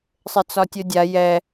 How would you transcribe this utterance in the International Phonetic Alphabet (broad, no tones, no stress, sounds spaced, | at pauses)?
sˤ ɘ t͡s ɒ tʲ o dʲ a j ɛ